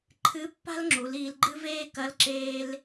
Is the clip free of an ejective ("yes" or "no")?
yes